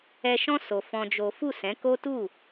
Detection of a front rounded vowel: absent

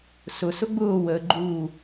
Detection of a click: present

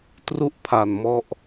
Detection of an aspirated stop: present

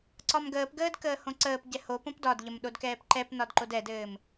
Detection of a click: present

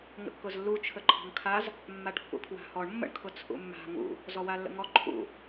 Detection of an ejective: absent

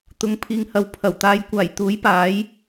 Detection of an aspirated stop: present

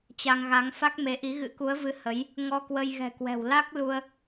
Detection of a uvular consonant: absent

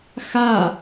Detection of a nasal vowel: absent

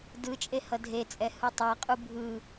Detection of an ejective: present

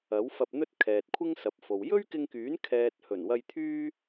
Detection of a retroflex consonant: absent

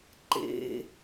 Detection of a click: present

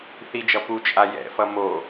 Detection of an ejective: present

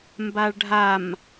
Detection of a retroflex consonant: present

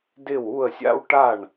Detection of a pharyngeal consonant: absent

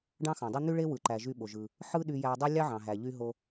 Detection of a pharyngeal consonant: present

